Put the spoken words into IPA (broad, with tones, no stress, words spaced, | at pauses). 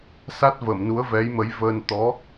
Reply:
sa˦˥t̚ vəː˨˩˨mnu˧˥ə̯vɛ˧˥jmə˧˥j vəː˧n t̪ɔ˧˥